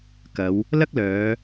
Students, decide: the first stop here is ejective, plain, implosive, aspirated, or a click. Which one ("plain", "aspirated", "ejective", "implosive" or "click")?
plain